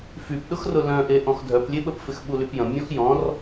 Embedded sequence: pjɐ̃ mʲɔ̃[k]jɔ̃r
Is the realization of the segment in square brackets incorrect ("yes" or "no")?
yes